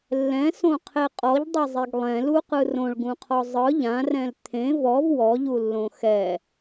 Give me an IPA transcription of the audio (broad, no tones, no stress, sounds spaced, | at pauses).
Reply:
lː ɛ̃ s õ qʰ e qʼ ɔ ʎ dˤ e zˤ e ɡ lˠ ɛ̃ l u q ɯ r õ ɭ ɡ ũ qʰ ɔ zˤ ɯ ʎ ã r ɛ̃ l t̪ʰ ẽ v ɔ v w ɔ ʎ u lː õ x ɛ